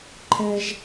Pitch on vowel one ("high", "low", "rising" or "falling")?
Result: high